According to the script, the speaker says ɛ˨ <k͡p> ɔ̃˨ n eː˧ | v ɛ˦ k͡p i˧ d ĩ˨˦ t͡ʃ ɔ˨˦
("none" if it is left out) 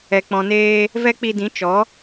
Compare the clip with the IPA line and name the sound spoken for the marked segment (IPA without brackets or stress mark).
k͡p